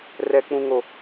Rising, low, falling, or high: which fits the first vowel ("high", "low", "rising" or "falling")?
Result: high